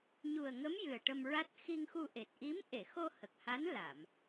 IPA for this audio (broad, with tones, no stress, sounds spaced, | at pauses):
ɲ u˨˩ ə̯ ŋ ə˧˥ m j ɨ˨˩ ə̯ ʈ ə˧ m ɹ a˦˥ t̚ x i˧ ŋ x u˧ ʔ e˨˩ t̚ ʔ i˧˥ m ʔ e˨˩˨ x o˧ h ə˨˩ k̚ h a˧˥ n l a˨˩˨ m